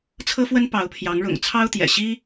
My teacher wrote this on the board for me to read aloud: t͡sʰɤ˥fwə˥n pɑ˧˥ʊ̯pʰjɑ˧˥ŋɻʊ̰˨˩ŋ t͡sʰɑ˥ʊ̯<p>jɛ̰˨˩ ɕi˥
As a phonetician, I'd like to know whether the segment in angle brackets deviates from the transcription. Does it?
yes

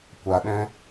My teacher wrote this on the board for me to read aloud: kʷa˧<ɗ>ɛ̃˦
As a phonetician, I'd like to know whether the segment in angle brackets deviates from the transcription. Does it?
no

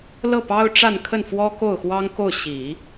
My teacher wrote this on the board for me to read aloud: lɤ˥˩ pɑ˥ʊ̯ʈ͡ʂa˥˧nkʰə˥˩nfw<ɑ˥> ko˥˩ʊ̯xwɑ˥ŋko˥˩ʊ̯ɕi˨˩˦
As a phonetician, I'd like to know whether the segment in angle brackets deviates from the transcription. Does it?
yes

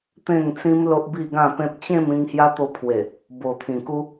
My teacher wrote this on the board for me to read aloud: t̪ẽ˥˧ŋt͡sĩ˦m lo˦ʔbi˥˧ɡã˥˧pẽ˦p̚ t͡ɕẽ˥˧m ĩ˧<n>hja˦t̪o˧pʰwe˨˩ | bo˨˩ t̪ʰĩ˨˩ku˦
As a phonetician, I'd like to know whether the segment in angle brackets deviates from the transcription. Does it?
yes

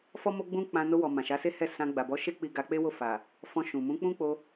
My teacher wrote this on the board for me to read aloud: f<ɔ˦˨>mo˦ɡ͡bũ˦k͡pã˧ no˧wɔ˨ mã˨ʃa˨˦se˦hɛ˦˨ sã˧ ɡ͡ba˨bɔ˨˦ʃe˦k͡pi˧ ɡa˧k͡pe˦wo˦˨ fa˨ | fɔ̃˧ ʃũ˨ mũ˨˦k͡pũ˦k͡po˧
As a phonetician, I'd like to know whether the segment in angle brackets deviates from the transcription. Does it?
yes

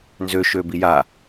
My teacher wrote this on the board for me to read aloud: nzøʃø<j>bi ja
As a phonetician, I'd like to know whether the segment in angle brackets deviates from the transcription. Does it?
yes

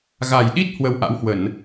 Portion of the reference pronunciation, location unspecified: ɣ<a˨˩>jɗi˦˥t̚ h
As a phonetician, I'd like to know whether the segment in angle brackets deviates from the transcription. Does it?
no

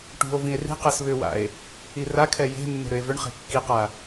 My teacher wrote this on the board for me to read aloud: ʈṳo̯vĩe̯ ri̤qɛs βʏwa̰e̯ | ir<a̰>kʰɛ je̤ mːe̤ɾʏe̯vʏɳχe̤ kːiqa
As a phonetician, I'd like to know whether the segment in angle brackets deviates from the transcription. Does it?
yes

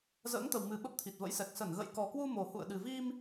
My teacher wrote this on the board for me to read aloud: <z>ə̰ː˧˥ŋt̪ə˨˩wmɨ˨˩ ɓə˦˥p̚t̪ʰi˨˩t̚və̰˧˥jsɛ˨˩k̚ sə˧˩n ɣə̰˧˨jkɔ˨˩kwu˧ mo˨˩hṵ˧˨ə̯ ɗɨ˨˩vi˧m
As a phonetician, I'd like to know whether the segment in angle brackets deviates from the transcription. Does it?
no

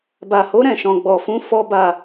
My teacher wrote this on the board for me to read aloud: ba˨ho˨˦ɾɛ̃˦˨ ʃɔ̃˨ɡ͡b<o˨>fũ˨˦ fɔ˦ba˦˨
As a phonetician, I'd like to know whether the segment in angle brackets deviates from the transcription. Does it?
yes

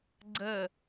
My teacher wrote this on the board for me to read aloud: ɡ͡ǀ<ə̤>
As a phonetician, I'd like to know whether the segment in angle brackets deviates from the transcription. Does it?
yes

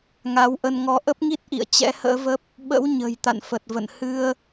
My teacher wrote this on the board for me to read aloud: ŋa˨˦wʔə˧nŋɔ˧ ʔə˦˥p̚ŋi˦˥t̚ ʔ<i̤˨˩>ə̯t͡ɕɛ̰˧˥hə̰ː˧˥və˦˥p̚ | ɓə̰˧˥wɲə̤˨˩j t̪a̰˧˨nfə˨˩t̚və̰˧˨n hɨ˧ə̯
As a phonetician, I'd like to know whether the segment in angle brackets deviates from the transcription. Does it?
yes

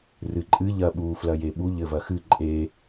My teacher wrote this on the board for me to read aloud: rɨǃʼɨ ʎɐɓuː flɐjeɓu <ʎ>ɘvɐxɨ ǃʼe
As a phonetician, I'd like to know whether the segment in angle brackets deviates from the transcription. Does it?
no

